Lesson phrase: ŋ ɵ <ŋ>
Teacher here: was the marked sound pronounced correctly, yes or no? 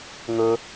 no